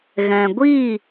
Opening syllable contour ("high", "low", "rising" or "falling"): low